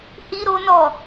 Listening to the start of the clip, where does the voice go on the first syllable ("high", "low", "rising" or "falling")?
high